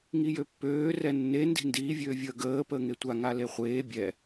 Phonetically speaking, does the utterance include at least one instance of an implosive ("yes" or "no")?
no